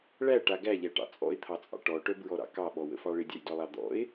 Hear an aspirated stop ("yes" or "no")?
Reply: yes